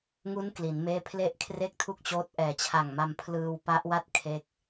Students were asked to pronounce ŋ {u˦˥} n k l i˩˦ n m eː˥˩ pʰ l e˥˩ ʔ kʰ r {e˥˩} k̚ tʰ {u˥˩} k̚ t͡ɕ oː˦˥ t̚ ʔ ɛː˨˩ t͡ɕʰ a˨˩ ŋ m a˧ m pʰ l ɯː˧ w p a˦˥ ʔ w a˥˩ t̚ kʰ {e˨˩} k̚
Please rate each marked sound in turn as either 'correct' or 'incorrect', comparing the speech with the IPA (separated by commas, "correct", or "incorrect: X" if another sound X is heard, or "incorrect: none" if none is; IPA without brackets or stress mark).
correct, correct, correct, incorrect: e˦˥